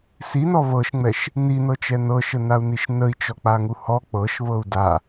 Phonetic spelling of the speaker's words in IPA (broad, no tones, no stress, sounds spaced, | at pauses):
s i n ɔ β ɤ ʃ ŋ͡m ɛ ʃ | n i n ɤ t͡ʃ ɛ n ɤ ʃ ə n a u̯ n i ʃ n ə i̯ t͡ʃ ɔ k͡p a ŋ u h ɔ k͡p ɤ ʃ β ɤ u̯ d a